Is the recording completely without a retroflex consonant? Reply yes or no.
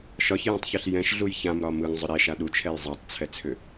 yes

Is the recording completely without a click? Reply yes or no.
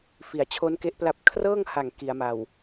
yes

